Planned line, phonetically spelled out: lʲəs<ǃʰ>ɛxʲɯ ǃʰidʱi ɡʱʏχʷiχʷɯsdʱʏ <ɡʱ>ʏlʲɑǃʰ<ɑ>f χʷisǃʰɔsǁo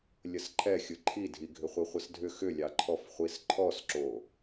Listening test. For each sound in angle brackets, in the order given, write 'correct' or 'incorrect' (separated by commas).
correct, incorrect, incorrect